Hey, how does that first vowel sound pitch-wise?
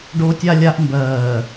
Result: high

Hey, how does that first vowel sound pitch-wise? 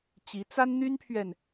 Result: rising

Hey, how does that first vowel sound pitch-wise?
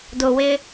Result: low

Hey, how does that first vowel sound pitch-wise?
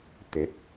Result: rising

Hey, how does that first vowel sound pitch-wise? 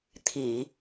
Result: low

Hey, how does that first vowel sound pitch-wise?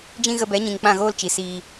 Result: high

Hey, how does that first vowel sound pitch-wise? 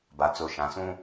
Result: low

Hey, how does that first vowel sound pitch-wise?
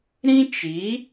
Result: high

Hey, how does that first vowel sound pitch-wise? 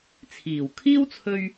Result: low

